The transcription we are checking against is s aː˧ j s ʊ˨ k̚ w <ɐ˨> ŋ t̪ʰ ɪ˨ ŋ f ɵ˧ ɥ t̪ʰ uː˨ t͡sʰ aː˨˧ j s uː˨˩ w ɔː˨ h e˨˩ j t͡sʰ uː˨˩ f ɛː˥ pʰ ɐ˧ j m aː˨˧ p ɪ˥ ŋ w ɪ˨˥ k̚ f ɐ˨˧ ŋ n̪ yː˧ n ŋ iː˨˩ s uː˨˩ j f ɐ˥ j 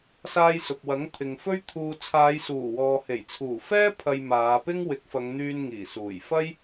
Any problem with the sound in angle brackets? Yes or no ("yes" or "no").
yes